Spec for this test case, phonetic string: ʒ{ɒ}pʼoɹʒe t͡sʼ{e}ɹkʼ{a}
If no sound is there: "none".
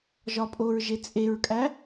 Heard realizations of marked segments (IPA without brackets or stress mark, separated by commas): ɒ, e, æ